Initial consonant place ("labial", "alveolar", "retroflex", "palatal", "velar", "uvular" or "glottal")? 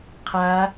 uvular